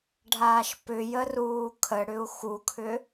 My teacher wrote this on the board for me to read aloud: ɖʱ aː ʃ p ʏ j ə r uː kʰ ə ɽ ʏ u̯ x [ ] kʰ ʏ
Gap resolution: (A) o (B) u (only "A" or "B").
B